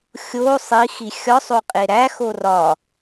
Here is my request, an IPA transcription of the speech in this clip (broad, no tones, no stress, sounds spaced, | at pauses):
xʲ o sˤ i x i xʲ ɒ sˤ o qʼ e ɾ æ x o r ɒ